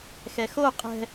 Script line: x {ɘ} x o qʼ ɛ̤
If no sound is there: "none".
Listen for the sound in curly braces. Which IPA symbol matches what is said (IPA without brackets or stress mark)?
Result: ɛ